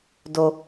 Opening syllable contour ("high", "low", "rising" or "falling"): high